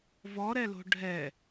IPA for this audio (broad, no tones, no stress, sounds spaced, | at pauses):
v ɔ ɾ ɛ l o̤ ɖʱ ɛ